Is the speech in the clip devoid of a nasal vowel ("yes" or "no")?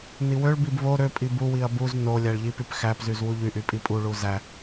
yes